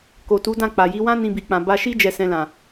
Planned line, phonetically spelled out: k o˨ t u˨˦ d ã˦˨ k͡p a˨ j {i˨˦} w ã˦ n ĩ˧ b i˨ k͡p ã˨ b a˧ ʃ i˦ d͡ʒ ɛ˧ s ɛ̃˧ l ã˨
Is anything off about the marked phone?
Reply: no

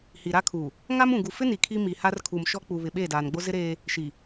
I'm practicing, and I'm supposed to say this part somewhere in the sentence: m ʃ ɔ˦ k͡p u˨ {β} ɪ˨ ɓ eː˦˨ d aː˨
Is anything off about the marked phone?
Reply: no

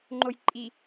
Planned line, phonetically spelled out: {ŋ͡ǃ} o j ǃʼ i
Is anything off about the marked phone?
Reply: no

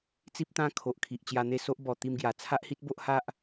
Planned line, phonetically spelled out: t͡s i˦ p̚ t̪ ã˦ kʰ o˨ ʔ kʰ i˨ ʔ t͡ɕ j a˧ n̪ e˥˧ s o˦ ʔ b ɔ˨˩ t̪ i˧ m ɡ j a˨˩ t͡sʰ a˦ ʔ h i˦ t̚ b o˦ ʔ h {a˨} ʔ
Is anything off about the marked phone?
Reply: yes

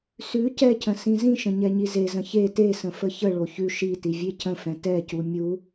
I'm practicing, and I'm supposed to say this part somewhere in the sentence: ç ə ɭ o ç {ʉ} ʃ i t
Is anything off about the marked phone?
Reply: no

